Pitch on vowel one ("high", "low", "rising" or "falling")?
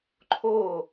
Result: falling